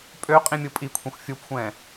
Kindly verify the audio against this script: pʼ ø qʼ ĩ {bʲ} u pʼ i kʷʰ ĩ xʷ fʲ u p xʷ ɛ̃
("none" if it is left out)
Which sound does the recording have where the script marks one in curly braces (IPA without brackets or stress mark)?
mʲ